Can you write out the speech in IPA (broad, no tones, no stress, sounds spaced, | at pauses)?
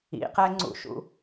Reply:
ḭ q ɛ ŋ͡ǀ ṵ ʃ ṵ